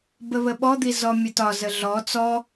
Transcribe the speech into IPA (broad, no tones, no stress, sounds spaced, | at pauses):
b ə β ə ɓ ɔ d̪ i z ɔ mʲ ə t ɒ z ə ɮ ɔ t͡s ɔ